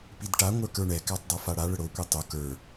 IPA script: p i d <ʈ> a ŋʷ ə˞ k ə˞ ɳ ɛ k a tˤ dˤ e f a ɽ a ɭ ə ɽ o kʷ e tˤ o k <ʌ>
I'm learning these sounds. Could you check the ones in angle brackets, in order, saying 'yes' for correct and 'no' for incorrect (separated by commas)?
yes, no